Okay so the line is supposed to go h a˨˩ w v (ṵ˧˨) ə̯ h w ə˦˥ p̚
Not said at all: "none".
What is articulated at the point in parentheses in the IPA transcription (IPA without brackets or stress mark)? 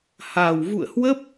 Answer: ṵ˧˨